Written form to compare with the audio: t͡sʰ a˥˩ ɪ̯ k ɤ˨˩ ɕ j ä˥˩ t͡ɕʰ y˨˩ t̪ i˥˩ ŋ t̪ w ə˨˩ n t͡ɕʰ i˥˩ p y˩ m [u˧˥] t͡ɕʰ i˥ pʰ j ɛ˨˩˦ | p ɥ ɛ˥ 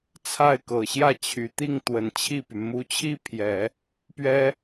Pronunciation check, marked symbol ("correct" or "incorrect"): correct